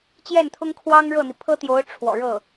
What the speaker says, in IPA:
t͡ɕ j ɛ˥˩ n t̪ʰ ʊ˥ ŋ kʰ w ɑ˥ ŋ ɻ ɤ˥˩ n̪ i˩ pʰ ɤ˥ t̪ j o˧˥ ʊ̯ ʈ͡ʂʰ w ɔ̰˨˩ ɻ ɤ˥˩

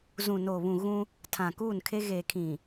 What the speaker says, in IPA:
z ũ˨ n oː˨ β ũ˨ ɣ ũ˦ | tʰ ã˨ k uː˦˨ n kʰ e˦ ɣ eː˨ kʰ ĩ˨

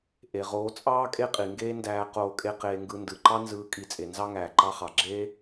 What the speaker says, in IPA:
ʔ e˨ ʁ oː˨˦ t͡sʼ ɑː˦ kʼ e˦ qʼ i˨ ŋ ɡ eː˦ n d æː˧ q oː˧ kʼ e˦ q eː˧ ŋ ɡ ɯ˧ n d ɯ˨ ǃ ɑ˦ n z ɯː˨˦ kʼ i˨ t͡sʼ e˨ n z ɑ˦ ŋ æː˨ ǃ ɑ˧ χ ɑ˨ ɡ͡ǁ eː˦

